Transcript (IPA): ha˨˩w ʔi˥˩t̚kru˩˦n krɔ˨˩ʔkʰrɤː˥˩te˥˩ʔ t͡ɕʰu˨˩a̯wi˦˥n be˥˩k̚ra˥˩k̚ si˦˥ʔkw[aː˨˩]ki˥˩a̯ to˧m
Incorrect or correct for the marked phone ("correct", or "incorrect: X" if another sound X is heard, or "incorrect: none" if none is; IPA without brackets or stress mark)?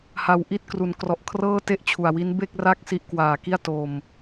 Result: correct